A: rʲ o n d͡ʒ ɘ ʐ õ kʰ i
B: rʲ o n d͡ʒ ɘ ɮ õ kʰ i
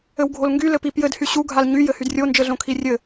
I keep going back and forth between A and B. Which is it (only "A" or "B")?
B